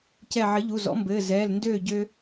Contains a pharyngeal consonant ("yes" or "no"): yes